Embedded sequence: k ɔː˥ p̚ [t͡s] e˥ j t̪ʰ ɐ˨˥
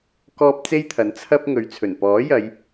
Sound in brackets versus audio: correct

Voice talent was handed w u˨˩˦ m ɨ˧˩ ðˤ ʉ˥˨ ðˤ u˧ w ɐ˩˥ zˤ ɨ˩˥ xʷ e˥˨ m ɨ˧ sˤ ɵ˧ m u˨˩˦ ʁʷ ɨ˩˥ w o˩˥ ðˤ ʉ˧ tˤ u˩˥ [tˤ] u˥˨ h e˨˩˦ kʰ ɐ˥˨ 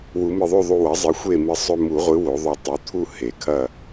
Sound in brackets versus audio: incorrect: t̪ʰ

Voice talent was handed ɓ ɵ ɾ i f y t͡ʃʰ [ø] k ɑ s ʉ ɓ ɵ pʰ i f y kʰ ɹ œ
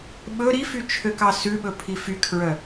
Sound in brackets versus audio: correct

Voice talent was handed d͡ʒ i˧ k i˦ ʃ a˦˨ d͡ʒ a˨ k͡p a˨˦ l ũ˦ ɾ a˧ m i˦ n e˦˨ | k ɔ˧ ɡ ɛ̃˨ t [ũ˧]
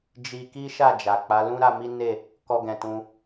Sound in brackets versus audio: correct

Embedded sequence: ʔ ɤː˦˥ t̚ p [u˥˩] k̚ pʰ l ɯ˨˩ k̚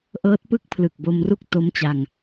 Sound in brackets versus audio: incorrect: ɯ˥˩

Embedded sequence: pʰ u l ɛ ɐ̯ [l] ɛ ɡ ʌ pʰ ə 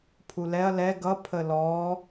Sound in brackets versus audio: correct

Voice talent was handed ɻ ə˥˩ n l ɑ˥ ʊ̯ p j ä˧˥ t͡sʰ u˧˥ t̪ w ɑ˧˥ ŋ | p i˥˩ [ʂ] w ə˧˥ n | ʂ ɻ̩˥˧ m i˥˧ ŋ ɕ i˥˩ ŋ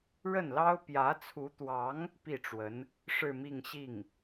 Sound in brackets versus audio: incorrect: ʈ͡ʂ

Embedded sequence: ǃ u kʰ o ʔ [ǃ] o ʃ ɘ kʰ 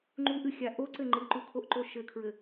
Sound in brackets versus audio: correct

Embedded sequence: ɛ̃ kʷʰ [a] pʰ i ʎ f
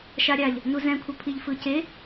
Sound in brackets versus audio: incorrect: ʌ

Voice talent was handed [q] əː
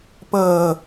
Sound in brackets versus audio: incorrect: p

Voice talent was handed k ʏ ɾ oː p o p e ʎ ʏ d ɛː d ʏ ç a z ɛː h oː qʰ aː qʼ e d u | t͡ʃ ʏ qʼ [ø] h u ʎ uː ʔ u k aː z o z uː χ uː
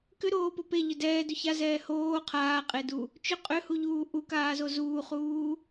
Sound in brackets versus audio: correct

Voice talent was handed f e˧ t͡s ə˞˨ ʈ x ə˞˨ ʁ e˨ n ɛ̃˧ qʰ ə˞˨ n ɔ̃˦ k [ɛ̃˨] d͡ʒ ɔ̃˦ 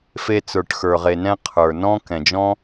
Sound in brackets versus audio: correct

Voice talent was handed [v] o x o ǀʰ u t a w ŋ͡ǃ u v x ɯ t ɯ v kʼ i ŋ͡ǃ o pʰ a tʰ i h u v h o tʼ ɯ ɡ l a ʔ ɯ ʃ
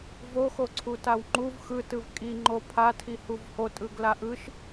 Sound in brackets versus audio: correct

